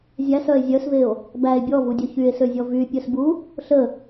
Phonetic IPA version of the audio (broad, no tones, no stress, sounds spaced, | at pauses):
zʲ æ s œ e̯ zʲ œ s v e o̯ | b æ e̯ bʲ ɔ v u dʲ œ ç y e̯ s ø zʲ ɔ v y pʲ œ s b u | ɬ ə